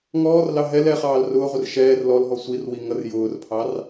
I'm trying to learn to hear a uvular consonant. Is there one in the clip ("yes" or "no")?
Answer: yes